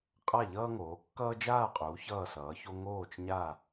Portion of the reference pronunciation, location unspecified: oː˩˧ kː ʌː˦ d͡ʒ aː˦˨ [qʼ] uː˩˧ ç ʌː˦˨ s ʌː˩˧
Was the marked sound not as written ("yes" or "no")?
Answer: no